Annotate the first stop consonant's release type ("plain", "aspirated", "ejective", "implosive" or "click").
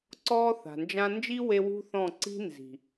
click